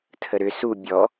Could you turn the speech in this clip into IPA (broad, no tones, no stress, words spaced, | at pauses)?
tʰəɾʏ su bʲɔ